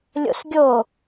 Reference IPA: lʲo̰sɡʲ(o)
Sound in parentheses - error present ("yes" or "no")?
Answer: no